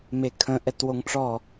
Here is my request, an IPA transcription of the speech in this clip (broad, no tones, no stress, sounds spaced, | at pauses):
m e kʰ ə̃ ʔ ɛ t w o ŋ ʈ͡ʂ ɔ